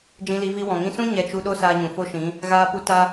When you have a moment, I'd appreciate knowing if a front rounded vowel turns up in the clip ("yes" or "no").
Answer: no